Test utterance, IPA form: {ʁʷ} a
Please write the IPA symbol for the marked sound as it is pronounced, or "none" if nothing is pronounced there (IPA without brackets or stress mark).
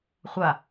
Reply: χʷ